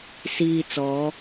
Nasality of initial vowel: oral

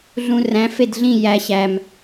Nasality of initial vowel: nasal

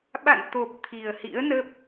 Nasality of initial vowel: oral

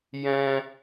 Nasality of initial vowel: nasal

